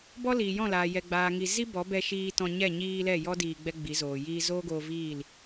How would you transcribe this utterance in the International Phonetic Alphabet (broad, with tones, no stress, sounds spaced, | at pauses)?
b ɔ˦ l iː˨ j ɔ̃˦˨ l aː˨ j ɛ˨ ɡ͡b aː˨ ŋ i˧ z i˦ b ɔ˨˦ b ɛ˧ ʃ iː˧ t ɔ̃˧ ɲ ɛ˦˨ ɲ iː˧ l ɛ˦˨ j ɔ˦ d iː˧ ɡ͡b ɛ˦ ɡ͡b i˨˦ z oː˨ j iː˧ z oː˦ ɡ oː˧ v iː˦˨ l